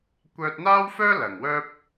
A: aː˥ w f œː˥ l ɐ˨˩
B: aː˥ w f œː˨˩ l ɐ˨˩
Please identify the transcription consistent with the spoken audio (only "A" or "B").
A